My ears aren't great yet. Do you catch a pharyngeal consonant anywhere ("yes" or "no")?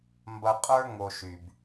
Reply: no